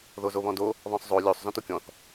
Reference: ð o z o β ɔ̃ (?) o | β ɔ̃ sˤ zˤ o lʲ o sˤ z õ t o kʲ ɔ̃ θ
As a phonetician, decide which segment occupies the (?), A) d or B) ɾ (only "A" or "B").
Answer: A